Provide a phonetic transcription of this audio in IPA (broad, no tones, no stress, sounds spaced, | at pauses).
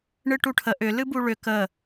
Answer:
ɳ ɨ ʈ u ʈʰ ə ʔ ʏ l ɨ b u ɭ ʏ k ə